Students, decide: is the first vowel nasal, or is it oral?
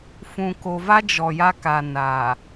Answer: nasal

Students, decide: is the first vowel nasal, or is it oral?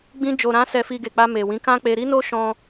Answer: nasal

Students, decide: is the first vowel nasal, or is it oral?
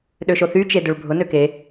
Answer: oral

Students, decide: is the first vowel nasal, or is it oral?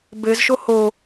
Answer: oral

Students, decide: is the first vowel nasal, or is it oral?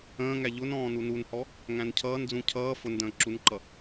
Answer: nasal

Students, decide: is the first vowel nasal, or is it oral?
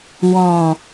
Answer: nasal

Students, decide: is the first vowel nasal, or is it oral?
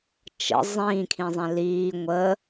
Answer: oral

